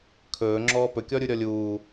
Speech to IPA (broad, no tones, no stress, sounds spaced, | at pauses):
kʰ ɵː ŋ͡ǁ ɔː p ɵ kʲ ɔ ɾʲ u ɾʲ ɔ lʲ uː